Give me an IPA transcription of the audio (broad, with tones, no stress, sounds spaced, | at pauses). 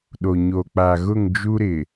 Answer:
ɗ o˨ ɲ o˨ k͡p a˨ ɣ ʊ˦˨ ŋ d͡ʒ u˦ ɾ ɪ˨